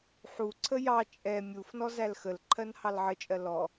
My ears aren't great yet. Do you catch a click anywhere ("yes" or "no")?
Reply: yes